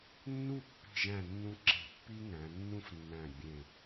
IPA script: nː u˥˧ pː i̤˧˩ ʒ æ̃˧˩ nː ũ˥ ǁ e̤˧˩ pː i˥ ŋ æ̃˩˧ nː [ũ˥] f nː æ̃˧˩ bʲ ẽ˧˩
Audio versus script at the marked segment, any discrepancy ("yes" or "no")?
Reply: no